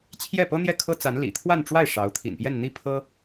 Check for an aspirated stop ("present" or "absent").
present